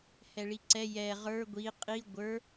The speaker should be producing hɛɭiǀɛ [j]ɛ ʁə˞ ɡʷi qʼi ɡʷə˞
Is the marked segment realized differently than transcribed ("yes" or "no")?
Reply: no